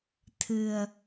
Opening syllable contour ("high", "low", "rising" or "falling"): low